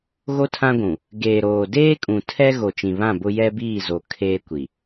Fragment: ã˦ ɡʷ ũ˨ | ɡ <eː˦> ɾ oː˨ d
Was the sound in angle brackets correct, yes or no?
no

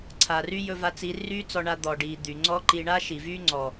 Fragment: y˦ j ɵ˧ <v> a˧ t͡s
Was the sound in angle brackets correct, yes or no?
yes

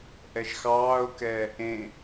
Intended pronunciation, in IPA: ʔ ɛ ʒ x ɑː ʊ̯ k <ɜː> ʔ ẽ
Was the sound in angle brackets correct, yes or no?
no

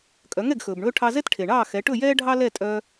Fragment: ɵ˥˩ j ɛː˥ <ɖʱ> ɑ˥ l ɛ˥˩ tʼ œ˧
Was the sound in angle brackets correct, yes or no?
yes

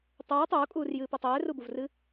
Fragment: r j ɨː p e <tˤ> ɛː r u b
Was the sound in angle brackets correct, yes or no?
yes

